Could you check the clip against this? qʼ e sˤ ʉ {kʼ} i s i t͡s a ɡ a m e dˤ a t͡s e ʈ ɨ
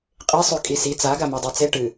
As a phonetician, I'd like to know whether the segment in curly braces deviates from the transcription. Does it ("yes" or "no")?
no